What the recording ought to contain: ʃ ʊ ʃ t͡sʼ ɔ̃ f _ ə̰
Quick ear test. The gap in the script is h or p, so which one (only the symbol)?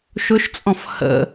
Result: h